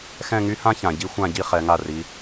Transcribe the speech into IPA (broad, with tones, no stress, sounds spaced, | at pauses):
x ɛ̃˥˧ ŋ y˥ h ã˥ ç ã˩˧ ɟ i˥ xʷ ã˥˧ ɟ i˥ χ ɛ˩˧ ŋ a˧˩ r i˩˧